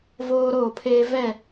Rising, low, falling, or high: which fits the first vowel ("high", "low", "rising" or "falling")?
high